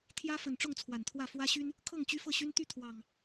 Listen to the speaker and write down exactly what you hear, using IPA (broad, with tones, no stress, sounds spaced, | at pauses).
t̪ʰ j ä˦ f ə˨˩ n ʈ͡ʂ ʊ˥˨ ŋ t͡sʰ w a˨˩ n t̪ʰ w ä˥˨ f w ä˦ ɕ y˦ n | kʰ ɤ˥˨ ŋ t͡ɕ y˦ f ɤ˥˨ ɕ y˦ n t̪ y˥˨ t̪ʰ w ɑ˨˩ ŋ